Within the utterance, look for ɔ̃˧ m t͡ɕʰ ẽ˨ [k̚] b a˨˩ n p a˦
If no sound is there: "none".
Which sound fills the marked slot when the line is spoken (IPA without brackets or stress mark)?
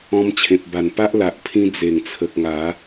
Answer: p̚